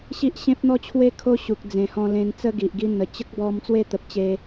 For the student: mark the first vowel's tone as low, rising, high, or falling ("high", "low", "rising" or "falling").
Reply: high